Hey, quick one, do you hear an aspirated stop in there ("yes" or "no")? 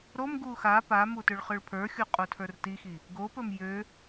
yes